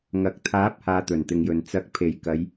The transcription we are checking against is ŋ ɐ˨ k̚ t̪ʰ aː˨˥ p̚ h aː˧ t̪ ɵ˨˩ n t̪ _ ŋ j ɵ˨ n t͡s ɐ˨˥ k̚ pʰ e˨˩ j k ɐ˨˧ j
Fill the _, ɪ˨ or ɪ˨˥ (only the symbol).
ɪ˨